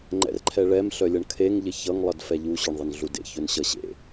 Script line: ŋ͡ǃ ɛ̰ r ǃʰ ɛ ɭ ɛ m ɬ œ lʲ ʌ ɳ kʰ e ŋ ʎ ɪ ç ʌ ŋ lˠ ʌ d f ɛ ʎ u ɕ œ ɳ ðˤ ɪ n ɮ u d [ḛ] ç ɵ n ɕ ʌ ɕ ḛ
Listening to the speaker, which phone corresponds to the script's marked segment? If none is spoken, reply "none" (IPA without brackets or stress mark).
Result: ḛ